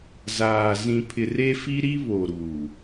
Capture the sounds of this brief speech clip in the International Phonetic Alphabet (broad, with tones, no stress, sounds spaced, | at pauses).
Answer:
z aː˨ z ĩ˨ pʰ ɪ˨ r e˦ f i˦ ɾ i˦ β o˨ ɾ uː˨